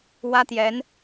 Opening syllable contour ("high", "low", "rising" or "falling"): high